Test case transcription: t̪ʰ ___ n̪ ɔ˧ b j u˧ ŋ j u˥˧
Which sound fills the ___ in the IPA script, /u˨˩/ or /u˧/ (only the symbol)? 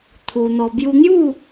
u˧